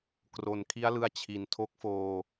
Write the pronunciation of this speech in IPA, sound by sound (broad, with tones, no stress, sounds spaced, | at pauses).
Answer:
k r o˨˩ n kʰ i˦˥ a̯ l ɯ˧ a̯ t͡ɕʰ i˨˩ n tʰ o˦˥ k̚ f oː˧